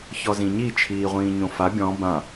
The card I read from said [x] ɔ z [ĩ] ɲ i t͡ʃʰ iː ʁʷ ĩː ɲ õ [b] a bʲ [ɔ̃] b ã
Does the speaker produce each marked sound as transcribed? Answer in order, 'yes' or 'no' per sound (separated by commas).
no, yes, no, yes